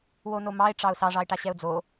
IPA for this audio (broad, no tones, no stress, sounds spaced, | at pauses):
w o n o m ɑ ɪ̯ ʈ͡ʂ ɑ ʊ̯ s ɑ ʐ ɑ ɪ̯ ʈ a ɕ ɛ ʊ̯ d͡z o